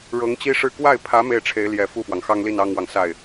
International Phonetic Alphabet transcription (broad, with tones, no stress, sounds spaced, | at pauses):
ɻ ɤ˧˥ ŋ t͡ɕ i˥ ʂ ɻ̩˥˧ k w a˥˩ ɪ̯ pʰ ä˧˥ m e˥˩ ɪ̯ ʈ͡ʂʰ e˧˥ ɪ̯ l j ɛ˨˩ f u˥˩ f w ɑ˩ ŋ x ɑ˥ ŋ l i˥˩ n ɑ˥ ŋ w ɑ˨ ŋ s a˥˩ ɪ̯